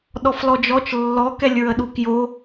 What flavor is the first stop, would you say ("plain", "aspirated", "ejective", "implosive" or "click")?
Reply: implosive